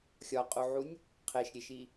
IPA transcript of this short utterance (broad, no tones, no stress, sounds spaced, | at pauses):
xʲ ɒ qʼ u ʕ u nʲ | qʰ e ʃ ɾʲ e ʃ i